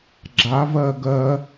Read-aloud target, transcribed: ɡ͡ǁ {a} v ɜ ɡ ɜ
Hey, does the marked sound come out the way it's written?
yes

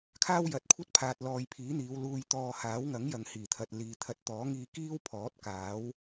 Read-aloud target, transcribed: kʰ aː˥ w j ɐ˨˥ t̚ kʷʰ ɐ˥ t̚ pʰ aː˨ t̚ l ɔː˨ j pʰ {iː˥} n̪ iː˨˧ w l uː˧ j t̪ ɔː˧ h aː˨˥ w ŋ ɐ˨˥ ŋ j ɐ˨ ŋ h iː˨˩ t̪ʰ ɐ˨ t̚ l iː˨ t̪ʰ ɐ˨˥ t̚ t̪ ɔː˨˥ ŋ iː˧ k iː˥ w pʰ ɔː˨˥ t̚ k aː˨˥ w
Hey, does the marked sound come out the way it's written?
no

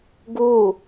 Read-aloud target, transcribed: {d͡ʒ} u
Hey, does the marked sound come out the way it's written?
no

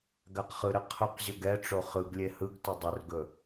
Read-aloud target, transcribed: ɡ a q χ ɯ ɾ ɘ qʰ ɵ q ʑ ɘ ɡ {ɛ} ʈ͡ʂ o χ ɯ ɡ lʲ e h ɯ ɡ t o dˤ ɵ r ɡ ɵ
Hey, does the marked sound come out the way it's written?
yes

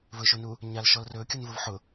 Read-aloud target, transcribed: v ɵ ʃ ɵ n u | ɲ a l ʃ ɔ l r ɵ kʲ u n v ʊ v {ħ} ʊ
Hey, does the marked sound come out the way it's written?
yes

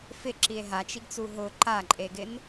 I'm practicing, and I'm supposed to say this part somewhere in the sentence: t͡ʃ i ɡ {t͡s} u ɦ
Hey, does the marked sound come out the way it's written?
yes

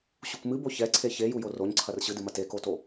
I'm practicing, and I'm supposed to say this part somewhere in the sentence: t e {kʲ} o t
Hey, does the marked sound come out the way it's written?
no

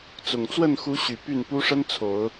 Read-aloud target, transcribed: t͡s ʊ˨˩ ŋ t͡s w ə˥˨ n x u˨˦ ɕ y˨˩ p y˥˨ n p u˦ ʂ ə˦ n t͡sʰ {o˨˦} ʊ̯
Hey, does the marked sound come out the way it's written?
yes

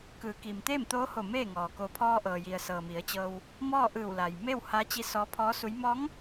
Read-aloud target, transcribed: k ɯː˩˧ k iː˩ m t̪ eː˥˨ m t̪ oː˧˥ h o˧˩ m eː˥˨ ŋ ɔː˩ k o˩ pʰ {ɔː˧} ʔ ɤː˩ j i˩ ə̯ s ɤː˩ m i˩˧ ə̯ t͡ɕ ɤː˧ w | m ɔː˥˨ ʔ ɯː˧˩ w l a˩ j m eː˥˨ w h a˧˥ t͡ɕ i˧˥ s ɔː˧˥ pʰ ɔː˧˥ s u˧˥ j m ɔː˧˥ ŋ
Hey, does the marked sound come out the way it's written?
yes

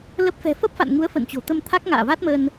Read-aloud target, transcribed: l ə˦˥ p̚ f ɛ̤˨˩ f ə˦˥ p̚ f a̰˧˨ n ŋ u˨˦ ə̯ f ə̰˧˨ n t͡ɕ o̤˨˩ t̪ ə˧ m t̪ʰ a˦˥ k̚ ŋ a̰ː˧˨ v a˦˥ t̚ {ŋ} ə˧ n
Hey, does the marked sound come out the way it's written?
no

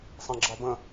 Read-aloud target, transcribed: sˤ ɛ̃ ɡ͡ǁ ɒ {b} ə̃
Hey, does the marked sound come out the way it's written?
yes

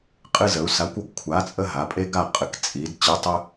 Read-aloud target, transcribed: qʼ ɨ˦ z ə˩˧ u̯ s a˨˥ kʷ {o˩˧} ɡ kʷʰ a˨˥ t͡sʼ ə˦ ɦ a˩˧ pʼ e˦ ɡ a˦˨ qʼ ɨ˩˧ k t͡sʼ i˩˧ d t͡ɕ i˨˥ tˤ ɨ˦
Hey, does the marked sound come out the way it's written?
no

